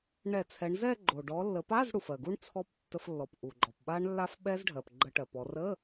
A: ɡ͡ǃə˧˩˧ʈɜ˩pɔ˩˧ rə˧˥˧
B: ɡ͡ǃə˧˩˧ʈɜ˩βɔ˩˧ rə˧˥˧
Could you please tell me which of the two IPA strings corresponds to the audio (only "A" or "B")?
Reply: A